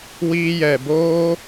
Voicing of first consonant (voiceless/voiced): voiced